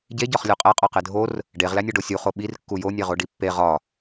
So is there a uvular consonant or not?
yes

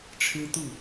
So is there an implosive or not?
no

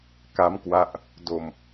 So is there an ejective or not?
no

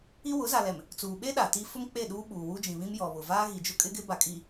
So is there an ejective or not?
yes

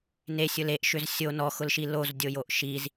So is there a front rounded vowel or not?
yes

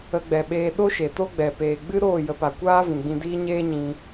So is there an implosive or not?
yes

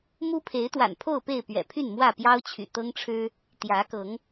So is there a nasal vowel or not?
no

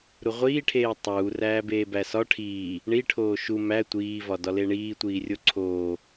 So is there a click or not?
yes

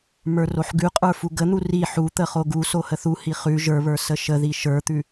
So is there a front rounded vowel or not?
no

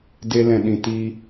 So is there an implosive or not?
yes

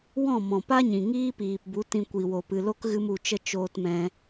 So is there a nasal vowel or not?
yes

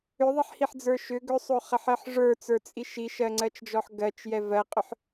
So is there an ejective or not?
yes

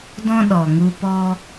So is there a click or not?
no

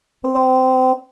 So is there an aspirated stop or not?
no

